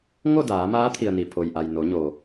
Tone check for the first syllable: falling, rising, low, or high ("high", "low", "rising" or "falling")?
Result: falling